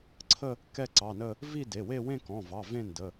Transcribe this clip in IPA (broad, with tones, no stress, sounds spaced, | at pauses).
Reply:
ǀʰ ə˥˧ | k ɛ˥˧ ǀ ɑ˩˧˩ n ə˥˧ | v i˥˧ d e˩˧˩ w e˥˧ w ẽ˥˧ k ɔ̃˩˧˩ v ɑ˩˧˩ v ẽ˥˧ n d ə˩˧˩